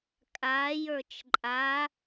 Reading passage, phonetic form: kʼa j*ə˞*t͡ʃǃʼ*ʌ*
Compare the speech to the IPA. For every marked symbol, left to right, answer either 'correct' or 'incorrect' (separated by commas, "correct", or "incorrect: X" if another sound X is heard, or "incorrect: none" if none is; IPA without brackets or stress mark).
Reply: correct, incorrect: a